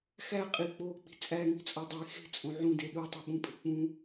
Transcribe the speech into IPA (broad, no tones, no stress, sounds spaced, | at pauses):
x æ qʼ i k͡p oː k͡p i̤ t͡sʼ æ ŋ i̤ t͡sʼ ɒ dˤ e x e̤ t͡sʼ õ ʕ ũ d e ɗ u tˤ i ɓ ũ pʼ e̤ k͡p ũ